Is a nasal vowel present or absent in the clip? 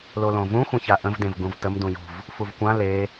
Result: present